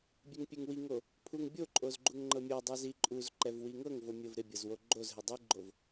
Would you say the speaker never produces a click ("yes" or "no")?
no